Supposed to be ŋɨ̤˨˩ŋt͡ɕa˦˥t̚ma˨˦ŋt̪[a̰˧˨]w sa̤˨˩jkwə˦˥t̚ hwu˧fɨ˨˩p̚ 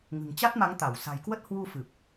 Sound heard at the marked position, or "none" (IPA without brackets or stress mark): a˧˩